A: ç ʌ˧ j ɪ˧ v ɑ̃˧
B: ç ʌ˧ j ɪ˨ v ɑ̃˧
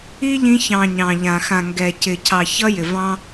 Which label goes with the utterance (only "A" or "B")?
B